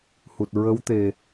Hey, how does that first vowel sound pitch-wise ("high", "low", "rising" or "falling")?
low